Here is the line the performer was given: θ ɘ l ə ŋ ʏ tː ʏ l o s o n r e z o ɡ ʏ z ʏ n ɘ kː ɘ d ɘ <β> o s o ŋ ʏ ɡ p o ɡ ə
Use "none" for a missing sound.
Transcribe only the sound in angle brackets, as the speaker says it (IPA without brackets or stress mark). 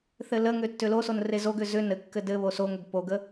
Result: β